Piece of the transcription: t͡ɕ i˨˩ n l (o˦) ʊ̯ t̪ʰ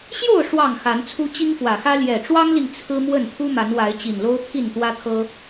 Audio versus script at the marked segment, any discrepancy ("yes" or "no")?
no